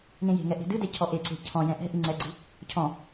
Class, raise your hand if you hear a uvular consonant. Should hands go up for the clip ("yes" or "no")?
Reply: no